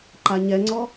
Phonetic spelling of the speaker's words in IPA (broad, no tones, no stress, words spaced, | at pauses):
ǃaɲɛŋ͡ǀɔ